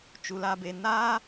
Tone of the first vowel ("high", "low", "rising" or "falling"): low